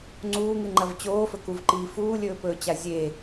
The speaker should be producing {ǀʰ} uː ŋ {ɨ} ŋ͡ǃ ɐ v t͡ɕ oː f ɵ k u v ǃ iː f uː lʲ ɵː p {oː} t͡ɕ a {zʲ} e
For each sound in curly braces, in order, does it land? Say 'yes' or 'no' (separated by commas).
no, yes, no, yes